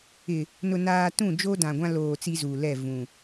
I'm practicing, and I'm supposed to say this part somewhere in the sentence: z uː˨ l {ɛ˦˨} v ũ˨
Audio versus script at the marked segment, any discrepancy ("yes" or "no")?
no